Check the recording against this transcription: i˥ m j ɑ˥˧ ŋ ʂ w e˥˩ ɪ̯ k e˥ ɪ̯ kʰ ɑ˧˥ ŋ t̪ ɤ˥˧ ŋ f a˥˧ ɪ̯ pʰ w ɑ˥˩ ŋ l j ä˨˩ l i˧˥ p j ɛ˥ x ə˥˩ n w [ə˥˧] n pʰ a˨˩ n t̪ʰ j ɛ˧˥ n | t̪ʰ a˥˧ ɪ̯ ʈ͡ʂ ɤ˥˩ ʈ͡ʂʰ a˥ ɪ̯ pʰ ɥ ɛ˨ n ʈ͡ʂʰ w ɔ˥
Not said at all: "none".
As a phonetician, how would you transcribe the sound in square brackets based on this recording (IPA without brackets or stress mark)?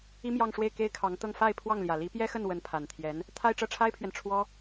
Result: ə˧˥